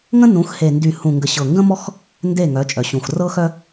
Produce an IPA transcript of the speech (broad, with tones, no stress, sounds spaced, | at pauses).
ŋ ə̃˦ n ũ˨˦ x h e˨ n d y˨ h ũ˨ ŋ ɡ ə˨ ɕ ɤ˨ ŋ ɡ ə̃˦ m ɔ˦ x | n d e˦˨ ŋ œ˨˦ t͡ʃʼ œ˨ ɕ ũ˨ x r ɤ˦ x œ˦